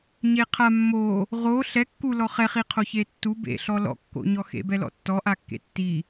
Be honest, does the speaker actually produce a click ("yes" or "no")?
no